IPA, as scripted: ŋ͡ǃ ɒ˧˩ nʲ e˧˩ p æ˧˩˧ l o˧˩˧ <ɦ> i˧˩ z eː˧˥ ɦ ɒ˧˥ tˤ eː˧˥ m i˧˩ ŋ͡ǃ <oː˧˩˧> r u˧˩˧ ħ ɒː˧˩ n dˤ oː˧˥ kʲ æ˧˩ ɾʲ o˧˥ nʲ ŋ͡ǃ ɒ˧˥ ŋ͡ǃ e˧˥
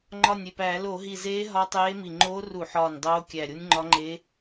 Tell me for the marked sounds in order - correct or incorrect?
correct, incorrect: oː˧˥

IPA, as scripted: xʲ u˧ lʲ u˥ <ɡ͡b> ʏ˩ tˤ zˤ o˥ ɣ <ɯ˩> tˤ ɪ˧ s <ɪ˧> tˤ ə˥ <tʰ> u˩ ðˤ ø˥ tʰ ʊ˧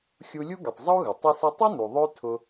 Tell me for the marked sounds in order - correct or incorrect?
incorrect: ɡ, incorrect: ə˩, correct, incorrect: n

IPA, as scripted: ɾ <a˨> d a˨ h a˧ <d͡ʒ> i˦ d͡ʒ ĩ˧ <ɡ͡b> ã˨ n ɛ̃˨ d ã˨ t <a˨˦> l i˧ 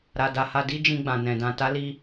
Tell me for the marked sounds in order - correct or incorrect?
correct, incorrect: d, correct, correct

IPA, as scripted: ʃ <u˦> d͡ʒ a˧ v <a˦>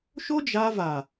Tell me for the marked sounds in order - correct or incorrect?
incorrect: o˦, incorrect: a˨

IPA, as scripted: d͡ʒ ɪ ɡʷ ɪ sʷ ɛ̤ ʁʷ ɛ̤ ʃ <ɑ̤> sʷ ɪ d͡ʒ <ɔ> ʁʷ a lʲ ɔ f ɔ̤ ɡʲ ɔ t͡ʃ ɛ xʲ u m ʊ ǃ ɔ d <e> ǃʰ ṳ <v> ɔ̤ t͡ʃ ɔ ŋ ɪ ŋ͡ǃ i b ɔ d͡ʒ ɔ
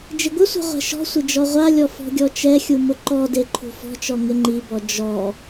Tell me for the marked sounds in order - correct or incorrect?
incorrect: ɔ̤, correct, correct, incorrect: f

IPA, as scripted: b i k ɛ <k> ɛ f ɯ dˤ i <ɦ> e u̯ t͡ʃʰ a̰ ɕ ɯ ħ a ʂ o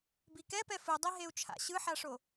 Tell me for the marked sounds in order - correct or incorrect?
incorrect: p, correct

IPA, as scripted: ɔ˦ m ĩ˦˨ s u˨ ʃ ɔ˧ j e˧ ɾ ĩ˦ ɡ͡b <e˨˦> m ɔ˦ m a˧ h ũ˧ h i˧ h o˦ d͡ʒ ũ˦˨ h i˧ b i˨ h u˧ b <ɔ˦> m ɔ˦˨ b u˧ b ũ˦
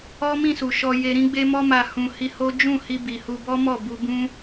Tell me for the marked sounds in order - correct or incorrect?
incorrect: e˦, correct

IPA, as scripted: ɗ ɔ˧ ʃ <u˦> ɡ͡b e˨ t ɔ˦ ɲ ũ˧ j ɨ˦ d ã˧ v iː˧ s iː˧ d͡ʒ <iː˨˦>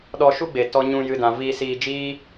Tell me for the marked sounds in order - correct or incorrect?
correct, incorrect: iː˦

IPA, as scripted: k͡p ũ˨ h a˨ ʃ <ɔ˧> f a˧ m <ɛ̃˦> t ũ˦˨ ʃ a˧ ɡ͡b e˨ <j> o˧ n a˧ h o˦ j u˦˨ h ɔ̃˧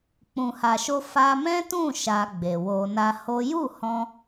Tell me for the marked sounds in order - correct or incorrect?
incorrect: o˧, correct, incorrect: w

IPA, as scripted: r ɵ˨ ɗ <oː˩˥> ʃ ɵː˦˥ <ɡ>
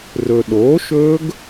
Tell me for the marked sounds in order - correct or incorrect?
correct, correct

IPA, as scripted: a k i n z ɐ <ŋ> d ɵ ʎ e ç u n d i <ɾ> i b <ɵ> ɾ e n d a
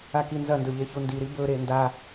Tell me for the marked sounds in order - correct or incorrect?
incorrect: n, correct, correct

